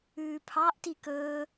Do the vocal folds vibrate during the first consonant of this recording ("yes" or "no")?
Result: no